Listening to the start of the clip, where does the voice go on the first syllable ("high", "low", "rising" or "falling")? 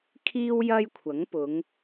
high